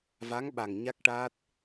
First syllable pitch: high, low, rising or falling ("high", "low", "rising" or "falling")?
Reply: rising